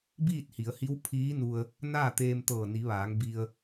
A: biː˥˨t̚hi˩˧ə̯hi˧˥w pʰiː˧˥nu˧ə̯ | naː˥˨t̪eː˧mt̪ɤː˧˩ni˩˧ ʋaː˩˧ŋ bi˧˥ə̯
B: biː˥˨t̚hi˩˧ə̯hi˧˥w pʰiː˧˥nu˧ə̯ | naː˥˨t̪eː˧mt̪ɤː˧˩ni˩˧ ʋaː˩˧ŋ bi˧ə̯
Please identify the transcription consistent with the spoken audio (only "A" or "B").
B